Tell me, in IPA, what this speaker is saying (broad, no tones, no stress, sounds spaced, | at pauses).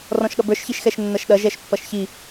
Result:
r ɔ̃ ʃ ɠ ɐ b ə˞ ʃ ç i ʃ x ɛ ʃ nː ʌ ʃ ɗ ɐ ʒ ɛ ʃ pː ʌ ʃ ç i